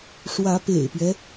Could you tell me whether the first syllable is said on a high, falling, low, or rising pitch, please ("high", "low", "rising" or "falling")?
rising